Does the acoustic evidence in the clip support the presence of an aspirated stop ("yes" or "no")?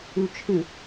yes